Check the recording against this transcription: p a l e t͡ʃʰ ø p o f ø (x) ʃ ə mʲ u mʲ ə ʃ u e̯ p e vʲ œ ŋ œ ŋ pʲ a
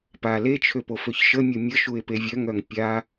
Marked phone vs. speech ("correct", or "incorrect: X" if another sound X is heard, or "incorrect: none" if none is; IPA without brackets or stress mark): incorrect: ç